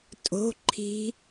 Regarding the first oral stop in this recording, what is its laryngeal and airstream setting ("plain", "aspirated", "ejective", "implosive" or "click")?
ejective